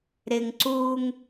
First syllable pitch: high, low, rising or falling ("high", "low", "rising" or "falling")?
high